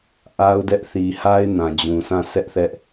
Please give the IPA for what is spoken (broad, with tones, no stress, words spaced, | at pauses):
ʔa˦ʊ̯dɛ˦ʔ θi˨ha˦ɪ̯ nã˨d͡ʑũ˨sʰã˦˨ sʰɛ˦ʔθɛ˦ʔ